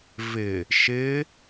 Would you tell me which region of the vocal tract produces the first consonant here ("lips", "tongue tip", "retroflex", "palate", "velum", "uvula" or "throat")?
lips